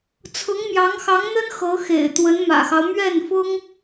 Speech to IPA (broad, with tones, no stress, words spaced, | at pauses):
t͡sʰʊ˧˥ŋmjɑ˧˥ŋxɑ˧˥ŋn̪ə˥n xɤ˧˥xḛ˨˩ɪ̯ t̪wə˧˥nmä̰˨˩xɑ˦ʊ̯ mɥɛ˥˩nfʊ˥ŋ